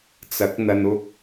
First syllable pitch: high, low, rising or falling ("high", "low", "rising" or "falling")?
rising